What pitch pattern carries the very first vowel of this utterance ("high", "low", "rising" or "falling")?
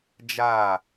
falling